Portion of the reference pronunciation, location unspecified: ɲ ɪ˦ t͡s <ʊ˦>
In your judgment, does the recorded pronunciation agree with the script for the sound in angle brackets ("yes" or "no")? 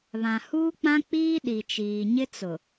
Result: no